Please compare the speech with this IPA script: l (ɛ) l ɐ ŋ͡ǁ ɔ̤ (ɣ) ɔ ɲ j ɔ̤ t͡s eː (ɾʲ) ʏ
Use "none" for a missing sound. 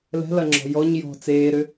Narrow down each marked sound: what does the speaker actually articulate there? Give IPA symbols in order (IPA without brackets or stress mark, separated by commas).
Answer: ɛ̤, j, ɾ